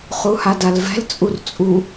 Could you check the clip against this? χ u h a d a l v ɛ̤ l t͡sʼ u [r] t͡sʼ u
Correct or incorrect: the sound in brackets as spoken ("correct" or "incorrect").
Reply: correct